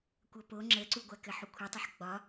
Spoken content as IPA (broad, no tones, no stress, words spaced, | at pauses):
kʷʌpo ŋ͡ǁəǀuɡʷa kɘħukʷʰɘtˤɐħ ɡ͡bɒ